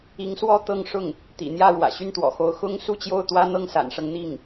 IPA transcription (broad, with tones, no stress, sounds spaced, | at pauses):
i˧˥ ŋ s w ɔ˥˧ t̪ ɤ˥˧ ŋ ʂ ʊ˥˩ ŋ | t̪ ḭ˨˩ n̪ j ä˥˩ ɻ w ä̰˨˩ ɕ y˥˩ n t̪ w ɔ̰˨˩ x o˧˥ ʊ̯ x ʊ˥ ŋ s u˥ t͡ɕ j o˥˩ ʊ̯ t̪ w ä˥ n̪ ɤ˥˩ ŋ s a̰˨˩ n ʂ ɤ˦ ŋ n̪ i˥˩ ŋ